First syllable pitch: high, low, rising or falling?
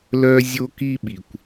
high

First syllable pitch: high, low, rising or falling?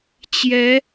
rising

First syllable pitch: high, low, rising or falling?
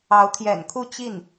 rising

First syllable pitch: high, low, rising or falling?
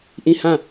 falling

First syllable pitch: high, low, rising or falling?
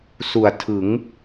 low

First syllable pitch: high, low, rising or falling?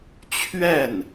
falling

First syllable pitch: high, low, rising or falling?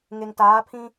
low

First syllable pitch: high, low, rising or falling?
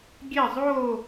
falling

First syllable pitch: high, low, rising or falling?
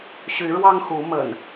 rising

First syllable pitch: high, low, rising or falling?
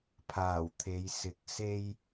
low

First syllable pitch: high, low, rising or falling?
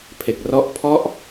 low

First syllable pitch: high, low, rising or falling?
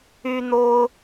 high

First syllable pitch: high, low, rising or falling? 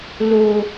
high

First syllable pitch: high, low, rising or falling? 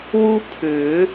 high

